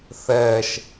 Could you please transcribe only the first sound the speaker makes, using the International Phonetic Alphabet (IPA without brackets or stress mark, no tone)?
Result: θ